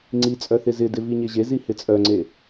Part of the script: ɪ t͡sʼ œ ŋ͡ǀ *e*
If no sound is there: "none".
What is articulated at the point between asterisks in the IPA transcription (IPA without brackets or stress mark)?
e